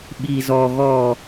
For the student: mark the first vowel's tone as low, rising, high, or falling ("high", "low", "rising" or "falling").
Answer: low